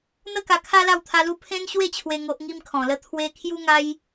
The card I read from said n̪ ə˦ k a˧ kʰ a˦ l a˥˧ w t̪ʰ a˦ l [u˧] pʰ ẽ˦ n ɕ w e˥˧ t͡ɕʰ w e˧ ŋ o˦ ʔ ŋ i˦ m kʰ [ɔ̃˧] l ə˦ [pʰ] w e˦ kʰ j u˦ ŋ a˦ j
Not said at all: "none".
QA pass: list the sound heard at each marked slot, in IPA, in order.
u˦, ɔ̃˧, t̪ʰ

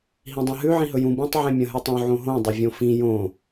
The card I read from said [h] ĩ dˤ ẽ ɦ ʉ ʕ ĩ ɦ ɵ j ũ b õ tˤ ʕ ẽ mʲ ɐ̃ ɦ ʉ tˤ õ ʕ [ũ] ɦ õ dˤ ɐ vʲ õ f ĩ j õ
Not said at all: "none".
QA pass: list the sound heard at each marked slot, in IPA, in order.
ɦ, õ

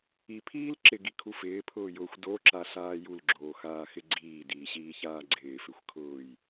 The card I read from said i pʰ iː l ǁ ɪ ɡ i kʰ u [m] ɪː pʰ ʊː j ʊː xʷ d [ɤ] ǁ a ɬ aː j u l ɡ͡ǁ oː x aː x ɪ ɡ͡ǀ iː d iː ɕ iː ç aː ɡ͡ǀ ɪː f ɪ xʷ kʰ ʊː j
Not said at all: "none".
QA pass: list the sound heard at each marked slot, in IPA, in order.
f, o

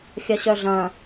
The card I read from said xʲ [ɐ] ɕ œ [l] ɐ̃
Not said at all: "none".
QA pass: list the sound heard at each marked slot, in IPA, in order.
ɐ, ɮ

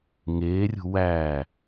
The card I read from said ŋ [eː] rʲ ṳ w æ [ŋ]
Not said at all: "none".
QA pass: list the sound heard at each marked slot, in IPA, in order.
eː, none

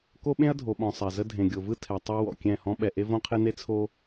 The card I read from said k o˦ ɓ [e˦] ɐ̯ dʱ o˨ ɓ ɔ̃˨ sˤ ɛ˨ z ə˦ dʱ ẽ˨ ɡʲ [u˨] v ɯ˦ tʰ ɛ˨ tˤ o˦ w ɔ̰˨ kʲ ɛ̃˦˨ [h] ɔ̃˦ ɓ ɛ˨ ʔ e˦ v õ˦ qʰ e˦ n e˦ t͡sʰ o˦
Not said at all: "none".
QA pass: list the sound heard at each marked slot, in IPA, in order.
ẽ˦, o˨, h

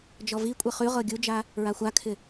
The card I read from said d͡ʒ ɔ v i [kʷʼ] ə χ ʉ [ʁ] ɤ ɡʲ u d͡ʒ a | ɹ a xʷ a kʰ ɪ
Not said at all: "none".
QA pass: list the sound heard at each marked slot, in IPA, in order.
kʷʼ, ʁ

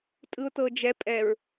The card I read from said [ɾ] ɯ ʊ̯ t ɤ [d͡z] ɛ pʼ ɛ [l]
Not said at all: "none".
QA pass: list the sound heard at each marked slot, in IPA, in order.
tʼ, d͡ʒ, ɹ

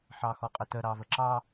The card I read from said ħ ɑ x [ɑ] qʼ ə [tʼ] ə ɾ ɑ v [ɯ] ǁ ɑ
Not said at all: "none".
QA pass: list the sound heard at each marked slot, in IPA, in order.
ɔ, t, ə

